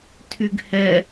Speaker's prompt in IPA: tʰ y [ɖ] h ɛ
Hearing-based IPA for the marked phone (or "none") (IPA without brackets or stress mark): ɡ